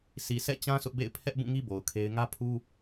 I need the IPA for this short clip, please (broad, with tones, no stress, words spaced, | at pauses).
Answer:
sʰi˨ sʰɛ̰˦˨t͡ɕã˦ sʰʊ˦ʔbḛ˦˨ɪ̯ pʰɛ˦ʔ bũ˦˨ŋi˦ bo˨ʊ̯kʰe˦ɪ̯ ŋä˦pʰu˦